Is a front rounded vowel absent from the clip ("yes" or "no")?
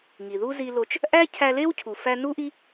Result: yes